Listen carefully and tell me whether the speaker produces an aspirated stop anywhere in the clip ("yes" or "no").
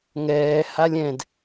no